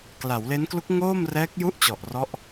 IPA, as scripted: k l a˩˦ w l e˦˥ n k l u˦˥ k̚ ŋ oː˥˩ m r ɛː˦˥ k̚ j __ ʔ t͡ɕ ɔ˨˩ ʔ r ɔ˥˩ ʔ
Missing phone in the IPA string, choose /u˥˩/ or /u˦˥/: u˥˩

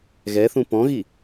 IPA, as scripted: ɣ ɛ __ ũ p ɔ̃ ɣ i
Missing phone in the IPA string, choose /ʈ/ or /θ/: θ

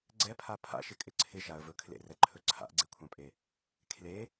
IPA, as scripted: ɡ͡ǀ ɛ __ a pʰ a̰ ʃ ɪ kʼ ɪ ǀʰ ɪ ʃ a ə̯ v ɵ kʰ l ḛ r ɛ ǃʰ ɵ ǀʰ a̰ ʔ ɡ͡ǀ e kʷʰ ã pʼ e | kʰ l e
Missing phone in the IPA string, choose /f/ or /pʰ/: pʰ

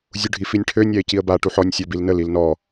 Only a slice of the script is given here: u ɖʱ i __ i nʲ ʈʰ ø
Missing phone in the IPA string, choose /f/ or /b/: f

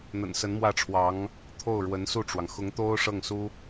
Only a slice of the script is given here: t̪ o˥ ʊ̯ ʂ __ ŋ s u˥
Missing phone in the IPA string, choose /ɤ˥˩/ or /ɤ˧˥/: ɤ˥˩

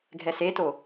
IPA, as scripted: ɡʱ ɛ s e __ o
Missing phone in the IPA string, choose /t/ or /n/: t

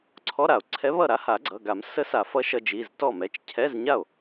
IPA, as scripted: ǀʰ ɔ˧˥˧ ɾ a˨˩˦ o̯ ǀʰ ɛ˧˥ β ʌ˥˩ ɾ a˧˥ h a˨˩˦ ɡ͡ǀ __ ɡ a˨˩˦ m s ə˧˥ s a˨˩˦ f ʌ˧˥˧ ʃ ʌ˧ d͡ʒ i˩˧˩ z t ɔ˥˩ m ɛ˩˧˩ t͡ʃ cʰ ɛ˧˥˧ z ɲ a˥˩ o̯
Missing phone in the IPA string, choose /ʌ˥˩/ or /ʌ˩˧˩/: ʌ˩˧˩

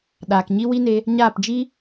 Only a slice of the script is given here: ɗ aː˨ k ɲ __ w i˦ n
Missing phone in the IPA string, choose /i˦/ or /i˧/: i˦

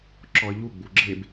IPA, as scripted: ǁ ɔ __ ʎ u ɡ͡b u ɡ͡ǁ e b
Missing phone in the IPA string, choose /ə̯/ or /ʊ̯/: ə̯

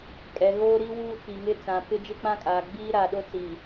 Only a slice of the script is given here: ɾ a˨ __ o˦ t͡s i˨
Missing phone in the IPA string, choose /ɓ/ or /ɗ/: ɗ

